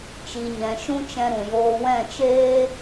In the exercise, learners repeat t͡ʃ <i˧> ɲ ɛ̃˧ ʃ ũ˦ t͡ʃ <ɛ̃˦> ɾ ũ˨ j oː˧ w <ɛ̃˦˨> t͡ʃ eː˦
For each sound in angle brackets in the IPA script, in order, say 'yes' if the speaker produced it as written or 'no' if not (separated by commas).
yes, no, yes